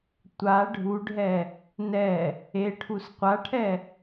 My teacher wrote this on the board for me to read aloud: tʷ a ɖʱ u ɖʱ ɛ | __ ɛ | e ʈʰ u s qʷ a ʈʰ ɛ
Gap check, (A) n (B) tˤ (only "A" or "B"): A